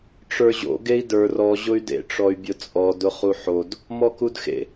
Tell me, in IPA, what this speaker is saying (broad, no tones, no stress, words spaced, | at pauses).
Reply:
ʈ͡ʂə˞ʑo̰ ɡei̯də˞ rɔ ʑʊy̯dḛ ʈ͡ʂɔy̯bʲʊt͡sʼɔ dʊχuħod | mɔkudxḛ